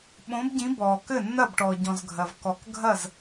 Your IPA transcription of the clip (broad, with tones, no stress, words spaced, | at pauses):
ɓõ˨˦bɟĩ˨˦bɔː˩ kɘ˥˩nːɐ˥˩b ʈɔ˩ɟɔ̃˩z ɡʱɐ˩v kɔ˩kɡʱɐ˥˩z